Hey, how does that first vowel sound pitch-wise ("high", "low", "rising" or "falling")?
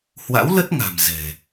rising